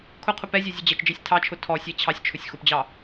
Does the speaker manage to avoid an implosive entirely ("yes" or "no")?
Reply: yes